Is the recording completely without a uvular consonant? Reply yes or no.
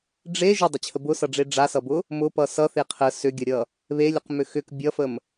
no